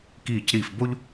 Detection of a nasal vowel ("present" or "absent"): absent